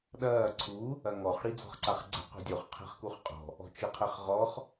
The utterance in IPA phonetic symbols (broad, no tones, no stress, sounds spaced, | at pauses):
ɗ ɐː ǀʰ u | ɐ ŋ ɔ χ ɽ i d͡z ɔ̤ χ ǀ a χ ɡ͡ǀ ɛ̤ q o̤ dʲ o χ qʰ ɛ̤ χ k u χ qʼ ɔ̤ | ɔ̤ t͡ʃ ɯ qʰ ɛ χ ʁ ɔ χ